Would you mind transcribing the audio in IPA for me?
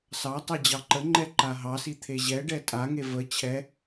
s ɑ tˤ ɛ d͡ʑ ɑ ǃ ə ŋ͡ǃ ɛ ǃ a ɦ ɑ s i t̪ʰ e ʑ ɛ ɖ ɛ tʼ a ŋ e v ə t͡ɕʰ ɛ

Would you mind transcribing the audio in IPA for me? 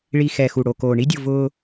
ɭ i˨ x ɛ˨ x u˨ ɽ o˨ k oː˨ ɳ i˦ dʲ o˦˨ v ʊː˦

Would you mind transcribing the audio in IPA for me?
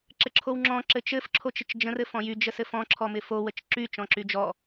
ǁ ɘ ǁʰ o w ŋ͡ǁ ɔ̃ ǁ ɘ t͡ʃ ɘ f ǁʰ o t͡ʃ ɪ t͡ʃ d͡ʒ ə̃ r ɘ f ɔ̃ j y d͡ʒ ə s ɘ f ɔ̃ ǁʰ ɔ m ɪ f o w ə t͡ʃ ǁ y t͡ʃ ɔ̃ ǁ y d͡ʒ ɔ

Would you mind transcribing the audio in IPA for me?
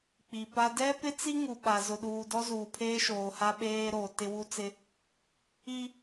k͡p i˨ p a˦ d ɛ˦ p ɪ˦ t͡s i˦ ŋ u˨ ɓ a˨ z ʊ˨ ɗ uː˨ d ɔ˦ z uː˨ pʰ eː˦ ʃ oː˨ h a˦ ɓ eː˦ ɾ oː˨ t ɪ˦ w u˦ t͡s ɪ˦ | i˦

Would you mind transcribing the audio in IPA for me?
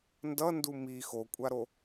n d ʌ n d u m i x o kʷʼ a ɾ o

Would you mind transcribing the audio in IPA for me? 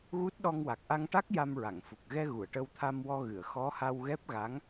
ɣ u˦˥ t̚ ɗ ɔ˧ ŋ w a˨˩ k̚ ʔ a˧ ŋ ʈ a˦˥ k̚ j a˧ m ɹ a˨˩˨ ŋ f u˨˩ k̚ ɣ ɛ˧ ɣ u˨˩˨ ə̯ ʈ ə˧ w t̪ʰ a˧ m w ɔ˧ ɣ ɨ˨˩˨ ə̯ x ɔ˧˥ h a˧ w ɣ ɛ˦˥ p̚ ɣ a˧˥ ŋ

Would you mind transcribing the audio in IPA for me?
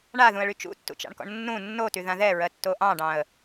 ɳ a ð ũ ə̯ ɭ y t͡ʃ ṵ tː ṵ t͡ʃ ɑ̰ ɳ k ɔ̰ ɳ nː ũ nː o t y ð ã ð ɛ ɹ ɜ tː o ʔ ɑ̃ ɖ ɑ̃ ə̯

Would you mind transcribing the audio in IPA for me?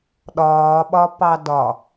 ɗ ɒː ɓ ɒ p ɑ d ɒ

